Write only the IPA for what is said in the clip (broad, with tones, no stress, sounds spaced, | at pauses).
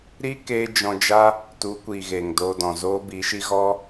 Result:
ɾ i˦ k eː˧ d͡ʒ ɔ̃˧ d͡ʒ a˦ | t u˨˦ kʷ iː˨ ɣ eː˨ ŋ d oː˧ d ɔ̃˨ z oː˦ b i˨˦ ʃ i˦ ɣ ɔ˦